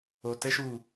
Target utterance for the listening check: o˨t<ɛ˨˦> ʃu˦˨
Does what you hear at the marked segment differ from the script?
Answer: no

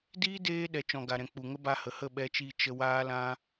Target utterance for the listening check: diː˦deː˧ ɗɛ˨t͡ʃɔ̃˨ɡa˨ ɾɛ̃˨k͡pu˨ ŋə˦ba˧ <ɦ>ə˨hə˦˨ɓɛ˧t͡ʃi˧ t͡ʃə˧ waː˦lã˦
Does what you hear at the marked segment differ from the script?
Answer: yes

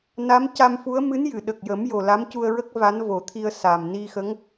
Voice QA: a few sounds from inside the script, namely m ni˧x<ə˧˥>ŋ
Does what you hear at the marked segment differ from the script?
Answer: no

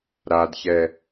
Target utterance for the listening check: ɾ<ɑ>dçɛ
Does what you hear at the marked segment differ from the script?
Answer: yes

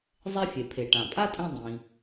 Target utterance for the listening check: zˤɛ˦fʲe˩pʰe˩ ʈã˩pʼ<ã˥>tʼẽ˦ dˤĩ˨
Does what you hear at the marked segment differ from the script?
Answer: yes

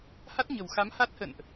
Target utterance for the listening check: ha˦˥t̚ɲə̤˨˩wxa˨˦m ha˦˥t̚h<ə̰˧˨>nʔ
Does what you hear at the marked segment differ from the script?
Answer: no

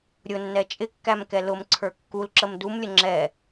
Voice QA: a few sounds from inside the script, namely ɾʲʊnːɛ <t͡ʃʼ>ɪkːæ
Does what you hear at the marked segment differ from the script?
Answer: no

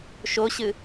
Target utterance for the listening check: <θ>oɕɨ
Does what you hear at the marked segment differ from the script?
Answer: yes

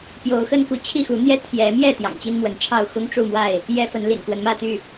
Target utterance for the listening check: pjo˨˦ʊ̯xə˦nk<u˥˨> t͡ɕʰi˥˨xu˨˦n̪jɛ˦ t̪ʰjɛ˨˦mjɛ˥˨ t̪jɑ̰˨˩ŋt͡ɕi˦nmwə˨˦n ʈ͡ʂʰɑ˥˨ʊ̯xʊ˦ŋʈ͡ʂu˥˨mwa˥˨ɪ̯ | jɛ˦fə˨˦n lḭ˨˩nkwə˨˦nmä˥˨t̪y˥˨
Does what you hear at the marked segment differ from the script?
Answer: yes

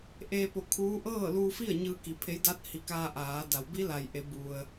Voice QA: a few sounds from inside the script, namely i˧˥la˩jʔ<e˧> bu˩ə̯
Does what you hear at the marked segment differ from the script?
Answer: yes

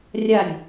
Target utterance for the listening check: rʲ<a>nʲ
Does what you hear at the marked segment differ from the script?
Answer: no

